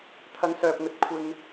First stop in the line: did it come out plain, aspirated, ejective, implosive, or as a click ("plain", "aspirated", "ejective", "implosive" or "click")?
aspirated